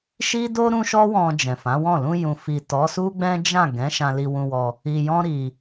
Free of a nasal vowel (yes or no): no